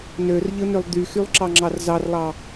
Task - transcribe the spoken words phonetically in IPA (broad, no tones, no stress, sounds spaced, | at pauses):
n ø r ʎ ɯ n ø lˠ d̪ y x y lˠ ǁ ɑ ŋ͡ǁ ɑ r z ɑ r lˠ ɑ